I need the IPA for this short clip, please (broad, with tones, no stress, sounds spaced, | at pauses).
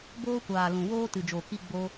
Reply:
b oː˦ kʷ aː˨ l ũ˨ w oː˦ t ɨ˨ d͡ʒ o˨ k i˧ ɡ͡b o˦